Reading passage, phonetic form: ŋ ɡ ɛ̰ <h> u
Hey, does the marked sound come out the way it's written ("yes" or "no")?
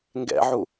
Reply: no